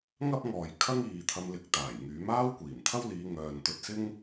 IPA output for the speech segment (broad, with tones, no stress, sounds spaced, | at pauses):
ŋ ɐ˥ p̚ ŋ ɔː˨ j kʰ ɐ˥ ŋ iː˨ t̪ʰ ɐ˧ m l ɪ˨ k̚ t̪ aː˨˩ j ŋ yː˨˥ m aː˥ w kʷ iː˨˩ m t̪ʰ ɐ˥ w l iː˨˧ ŋ œː˨ n t̪ ɵ˧ t̚ s ɪ˥ ŋ